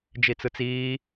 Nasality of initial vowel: oral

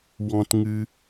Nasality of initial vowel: nasal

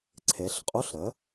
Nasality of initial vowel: oral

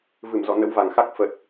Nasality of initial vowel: oral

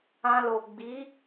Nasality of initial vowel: nasal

